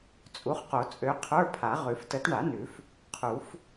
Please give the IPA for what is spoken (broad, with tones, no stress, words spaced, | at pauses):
t͡sʼu˨˥χqo˨˩˦t͡sʼø˨˥ qʰə˞˧˥˧pʰa˨˩˦ ʁʉ˨˩˦ftə˨˥t ɳa˨˩˦ nʉ˨˩˦f | qʰu˨˩˦f